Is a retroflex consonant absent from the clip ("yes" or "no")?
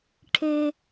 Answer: no